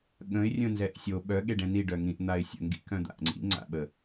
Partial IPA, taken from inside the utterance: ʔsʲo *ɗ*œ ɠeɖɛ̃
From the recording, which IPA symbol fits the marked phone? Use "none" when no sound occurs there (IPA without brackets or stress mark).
ɓ